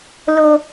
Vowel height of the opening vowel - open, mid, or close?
mid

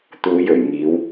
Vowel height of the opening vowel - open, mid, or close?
close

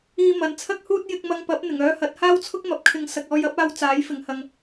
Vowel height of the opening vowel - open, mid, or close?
close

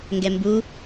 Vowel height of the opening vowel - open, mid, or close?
mid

